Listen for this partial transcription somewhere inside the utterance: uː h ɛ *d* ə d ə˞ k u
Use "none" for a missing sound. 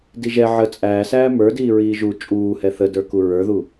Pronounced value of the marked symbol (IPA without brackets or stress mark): θ